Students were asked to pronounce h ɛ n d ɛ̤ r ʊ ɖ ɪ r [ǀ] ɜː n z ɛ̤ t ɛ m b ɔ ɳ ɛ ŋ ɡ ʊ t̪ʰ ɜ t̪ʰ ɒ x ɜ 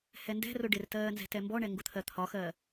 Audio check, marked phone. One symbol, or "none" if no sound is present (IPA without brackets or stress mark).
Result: t